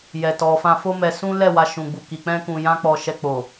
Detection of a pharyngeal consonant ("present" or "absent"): absent